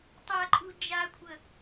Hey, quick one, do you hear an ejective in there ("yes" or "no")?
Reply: yes